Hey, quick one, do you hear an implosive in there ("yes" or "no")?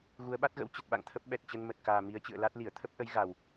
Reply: yes